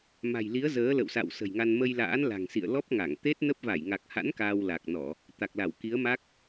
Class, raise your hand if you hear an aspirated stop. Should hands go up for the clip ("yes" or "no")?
no